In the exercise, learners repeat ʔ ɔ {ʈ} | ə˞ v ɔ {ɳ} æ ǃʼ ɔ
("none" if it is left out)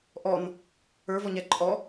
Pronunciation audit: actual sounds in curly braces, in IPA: n, ɲ

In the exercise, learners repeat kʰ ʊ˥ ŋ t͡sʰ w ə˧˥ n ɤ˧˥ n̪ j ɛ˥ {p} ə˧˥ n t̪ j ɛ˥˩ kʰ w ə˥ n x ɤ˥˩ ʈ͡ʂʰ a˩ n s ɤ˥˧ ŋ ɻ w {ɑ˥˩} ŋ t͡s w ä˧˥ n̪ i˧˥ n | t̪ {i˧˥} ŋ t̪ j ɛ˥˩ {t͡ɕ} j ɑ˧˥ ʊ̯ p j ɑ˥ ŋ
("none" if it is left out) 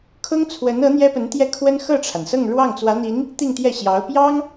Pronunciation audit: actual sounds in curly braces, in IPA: p, ɑ˥˩, i˥˧, ɕ

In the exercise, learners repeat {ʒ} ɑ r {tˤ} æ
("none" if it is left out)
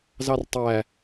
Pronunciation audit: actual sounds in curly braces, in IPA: z, tˤ

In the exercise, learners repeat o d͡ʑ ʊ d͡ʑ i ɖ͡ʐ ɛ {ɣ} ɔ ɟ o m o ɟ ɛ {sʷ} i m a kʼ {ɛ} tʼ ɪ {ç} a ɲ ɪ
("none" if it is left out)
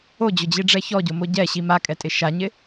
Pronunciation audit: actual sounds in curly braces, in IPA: ç, ɕ, ɛ, ʃ

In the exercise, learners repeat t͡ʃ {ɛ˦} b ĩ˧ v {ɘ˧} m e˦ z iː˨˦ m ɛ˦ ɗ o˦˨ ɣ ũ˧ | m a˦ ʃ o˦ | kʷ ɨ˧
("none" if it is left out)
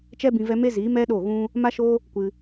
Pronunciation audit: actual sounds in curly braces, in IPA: ɛ˦, ɛ˧

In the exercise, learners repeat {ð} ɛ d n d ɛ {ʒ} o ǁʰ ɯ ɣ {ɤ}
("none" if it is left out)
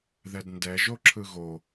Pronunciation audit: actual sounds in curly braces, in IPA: ð, ʒ, o

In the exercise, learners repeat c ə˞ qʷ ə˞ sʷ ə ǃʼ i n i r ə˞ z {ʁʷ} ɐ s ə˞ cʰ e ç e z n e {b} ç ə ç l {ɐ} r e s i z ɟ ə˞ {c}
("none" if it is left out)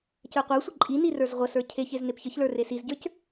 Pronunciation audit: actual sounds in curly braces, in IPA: ʁʷ, p, ə˞, c

